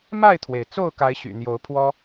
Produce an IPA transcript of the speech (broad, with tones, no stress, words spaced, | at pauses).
ma˥˨ɪ̯t̪ʰwe˩ɪ̯ t͡so˥˨ʊ̯ka˨˦ɪ̯ ɕy̰˨˩n̪jo˨˦ʊ̯pʰwɔ˦